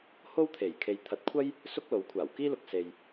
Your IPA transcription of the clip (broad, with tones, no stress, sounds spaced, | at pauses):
h o˥ w t̪ʰ e˨˩ j kʰ e˨˧ j t̪ʰ ɐ˨˥ t̚ kʷʰ ɐ˥ j | s ʊ˥ k̚ l o˨˥ w kʷʰ aː˨˩ w k iː˥ l ʊ˨ k̚ s e˨ j